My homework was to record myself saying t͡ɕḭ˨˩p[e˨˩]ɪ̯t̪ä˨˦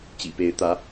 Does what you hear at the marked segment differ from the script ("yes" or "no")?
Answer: yes